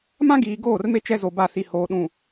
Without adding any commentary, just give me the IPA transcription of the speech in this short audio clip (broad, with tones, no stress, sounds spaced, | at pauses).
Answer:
m ã˦ ɡ iː˨ ɡ oː˦˨ r m e˦ t͡ʃ ɛ˦ z o˨ b a˦˨ s i˨ h oː˨ ɗ ũ˨